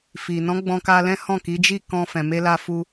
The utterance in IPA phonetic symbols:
f i˨ n ɔ̃˨˦ ɡ͡b ɔ̃˧ k a˧ l ɛ̃˦ h ɔ̃˦˨ k i˨˦ d͡ʒ i˦˨ k ɔ̃˧ f ɛ̃˨ m e˧ l a˧ f u˧

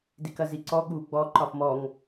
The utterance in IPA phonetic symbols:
d i k ɐ z i ǀ ɔ ɠ u ɡ͡b ɔ ǃ ɒ f m ɔ ŋ

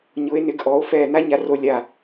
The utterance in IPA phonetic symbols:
ɲ ʊ˩˧ e̯ n ɪ˩˧ ɡ ʔ ɔ˩˧ o̯ f ɛ˧˩ n a˥ ɲ a˧ r o˧ lʲ a˧˩

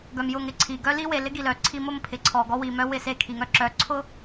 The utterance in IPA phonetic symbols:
ɡ œ˨ m j ʊ˦˨ ŋ ɪ˦ ǀʰ i˨ ɡ œ˦ l i˦ w e˨ l ɪ˦ ɡ i˨ l œ˨ ǀʰ i˦ m ʊ˦ m pʰ ɪ˨ ǀʰ ɔ˨ ɡ ɔ˦ w i˨ m œ˦ w ɪ˦˨ s e˦˨ kʰ i˨ ŋ œ˦ ǁ œ˨˦ ǀʰ ʊ˦

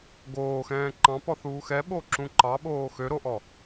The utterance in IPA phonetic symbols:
ɡ oː x ɛ̃ː ǃ ɑ̃ p ɔ θ uː x ɛ ɓ o ǁ ũ ǃ ɑ ɓ oː x ø ɾ o ʔ ɔ

